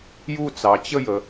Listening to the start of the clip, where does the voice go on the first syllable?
falling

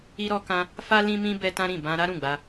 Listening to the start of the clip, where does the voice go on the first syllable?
high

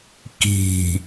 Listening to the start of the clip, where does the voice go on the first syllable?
low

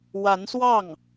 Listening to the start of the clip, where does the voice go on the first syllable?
rising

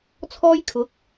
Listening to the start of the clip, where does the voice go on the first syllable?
high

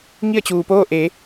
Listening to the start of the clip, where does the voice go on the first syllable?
falling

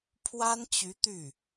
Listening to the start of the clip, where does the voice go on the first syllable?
high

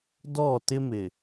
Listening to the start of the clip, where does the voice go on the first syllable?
falling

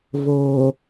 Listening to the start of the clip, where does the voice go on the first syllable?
low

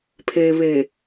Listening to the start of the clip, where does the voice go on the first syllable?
low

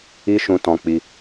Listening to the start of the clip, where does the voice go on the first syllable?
high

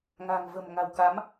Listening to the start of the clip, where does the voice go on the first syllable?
low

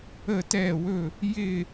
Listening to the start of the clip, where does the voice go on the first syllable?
falling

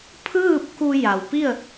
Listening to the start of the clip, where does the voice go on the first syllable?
falling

